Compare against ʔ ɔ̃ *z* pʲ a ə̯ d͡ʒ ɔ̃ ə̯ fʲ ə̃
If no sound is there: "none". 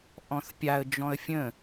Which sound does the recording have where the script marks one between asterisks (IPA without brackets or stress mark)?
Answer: θ